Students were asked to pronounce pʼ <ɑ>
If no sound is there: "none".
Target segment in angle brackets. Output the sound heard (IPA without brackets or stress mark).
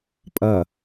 ʌ